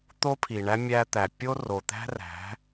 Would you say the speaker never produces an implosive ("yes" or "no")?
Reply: yes